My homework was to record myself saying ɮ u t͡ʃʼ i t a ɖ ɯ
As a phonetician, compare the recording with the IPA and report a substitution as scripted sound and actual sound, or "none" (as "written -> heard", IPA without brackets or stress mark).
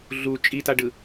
none